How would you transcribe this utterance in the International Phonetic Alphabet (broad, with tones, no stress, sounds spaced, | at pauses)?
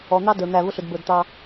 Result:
ɔ˨ n̪ ɑ˦ d ə˞˨ n̪ æ˦˨ v ʊ˦ ɬ ʊ˨ d b ə˞˨ d t̪ ɑ˦